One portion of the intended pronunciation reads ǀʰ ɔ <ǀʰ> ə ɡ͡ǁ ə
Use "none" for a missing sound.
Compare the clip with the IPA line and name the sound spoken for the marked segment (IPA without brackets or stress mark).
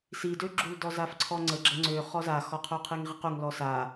ŋ͡ǀ